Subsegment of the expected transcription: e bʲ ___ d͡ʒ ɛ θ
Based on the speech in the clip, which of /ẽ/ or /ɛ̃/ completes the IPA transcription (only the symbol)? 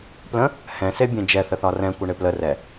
ẽ